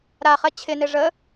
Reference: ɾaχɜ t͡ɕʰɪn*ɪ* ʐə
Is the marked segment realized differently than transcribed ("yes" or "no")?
no